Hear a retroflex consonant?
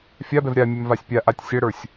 yes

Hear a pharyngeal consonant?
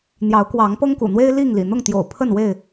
no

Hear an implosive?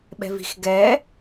yes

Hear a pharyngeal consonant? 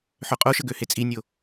yes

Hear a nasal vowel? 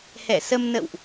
no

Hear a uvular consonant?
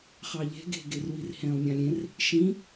yes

